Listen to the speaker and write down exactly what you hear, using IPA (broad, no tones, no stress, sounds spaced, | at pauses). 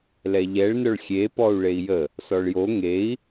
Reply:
l ɛ ʎ ɛ ɭ n œ ɭ xʲ e p ɔ u̯ ɭ e i̯ j ə | s ɔ ɭ j o ŋ e i̯